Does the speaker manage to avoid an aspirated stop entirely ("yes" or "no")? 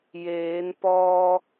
yes